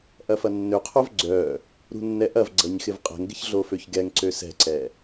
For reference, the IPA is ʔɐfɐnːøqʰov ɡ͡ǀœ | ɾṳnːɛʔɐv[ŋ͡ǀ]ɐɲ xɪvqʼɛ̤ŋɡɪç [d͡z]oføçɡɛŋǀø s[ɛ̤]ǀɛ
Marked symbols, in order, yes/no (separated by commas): no, no, yes